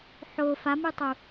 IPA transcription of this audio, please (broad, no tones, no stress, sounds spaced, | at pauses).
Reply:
ħ o f a m ɨ tˤ u